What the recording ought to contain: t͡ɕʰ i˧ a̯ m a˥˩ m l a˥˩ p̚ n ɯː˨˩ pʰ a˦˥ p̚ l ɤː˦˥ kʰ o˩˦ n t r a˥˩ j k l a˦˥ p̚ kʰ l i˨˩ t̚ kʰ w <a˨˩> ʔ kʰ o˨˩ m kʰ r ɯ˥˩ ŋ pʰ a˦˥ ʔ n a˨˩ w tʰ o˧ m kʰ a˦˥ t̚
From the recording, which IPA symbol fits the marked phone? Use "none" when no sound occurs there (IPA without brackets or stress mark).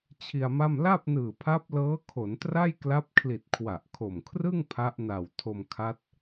a˨˩